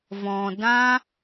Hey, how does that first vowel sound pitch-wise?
low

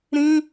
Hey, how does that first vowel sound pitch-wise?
high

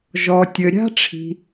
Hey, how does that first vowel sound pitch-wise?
low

